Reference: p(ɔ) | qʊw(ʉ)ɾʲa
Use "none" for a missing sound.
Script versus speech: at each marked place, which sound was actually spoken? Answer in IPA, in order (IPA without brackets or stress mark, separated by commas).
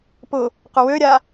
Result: ʊ, ø